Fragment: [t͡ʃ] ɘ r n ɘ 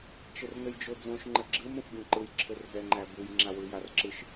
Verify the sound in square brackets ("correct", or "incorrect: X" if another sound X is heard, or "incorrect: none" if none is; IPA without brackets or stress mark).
correct